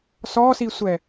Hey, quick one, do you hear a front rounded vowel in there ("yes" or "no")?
no